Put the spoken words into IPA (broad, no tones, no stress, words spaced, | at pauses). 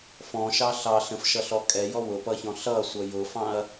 fɔ̃ʃɑ ɬɑ ɬə̃fʃʌɬɔ kʼɛjɔ wʊpʌçɔ̃ ɬʌsʷʌ jʊfɑ̃ɐ̯